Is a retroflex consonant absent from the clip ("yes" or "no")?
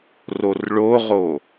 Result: no